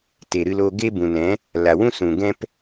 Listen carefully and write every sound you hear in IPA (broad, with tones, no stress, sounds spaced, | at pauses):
t e˨ ɾ ɨ˧ l o˧ ɡ e˦ b ũ˨ n ɛ̃˨˦ | l a˨ w ũ˦ s ũ˨ ɡ ɛ̃˦ p